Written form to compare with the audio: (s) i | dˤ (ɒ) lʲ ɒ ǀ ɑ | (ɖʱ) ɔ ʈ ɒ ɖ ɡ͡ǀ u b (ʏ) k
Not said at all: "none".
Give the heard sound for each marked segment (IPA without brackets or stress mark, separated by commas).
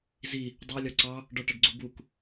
z, ɑ, ɖ, u